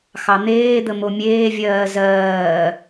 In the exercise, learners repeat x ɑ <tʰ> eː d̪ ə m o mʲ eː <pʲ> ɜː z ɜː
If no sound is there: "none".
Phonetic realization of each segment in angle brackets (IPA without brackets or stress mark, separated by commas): n̪, vʲ